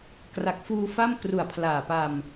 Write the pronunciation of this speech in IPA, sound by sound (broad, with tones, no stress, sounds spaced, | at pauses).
k r a˨˩ k̚ f uː˧ f a˥˩ m k r u˨˩ a̯ pʰ l aː˨˩ p a˧ m